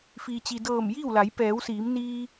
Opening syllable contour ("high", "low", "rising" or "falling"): low